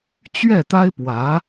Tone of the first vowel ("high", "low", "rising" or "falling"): falling